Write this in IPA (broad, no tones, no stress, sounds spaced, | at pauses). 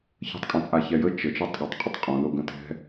ç ə̤ tˤ kʼ œ̃ t͡sʼ a ç ɛ j ə t͡ʃ ə t͡ʃ ɜ tˤ ɠ ə tˤ qʼ ə tˤ qʼ õ l o ɡ ə̃ t ɛ̤